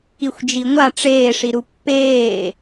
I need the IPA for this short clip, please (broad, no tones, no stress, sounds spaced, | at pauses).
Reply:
i xʷ d͡ʒ i ŋʷ a ʈ͡ʂ eː ʂ i ɾ u pː eː